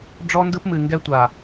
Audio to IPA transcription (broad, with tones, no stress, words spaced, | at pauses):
ɖ͡ʐɔ˦ndɯ˦pmɨ˨ ŋɡɛ˦ tʷa˨